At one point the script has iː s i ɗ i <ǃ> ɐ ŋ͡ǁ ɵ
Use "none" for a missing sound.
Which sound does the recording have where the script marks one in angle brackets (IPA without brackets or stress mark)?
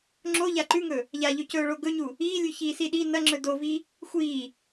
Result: n